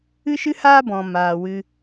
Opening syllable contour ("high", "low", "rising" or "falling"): high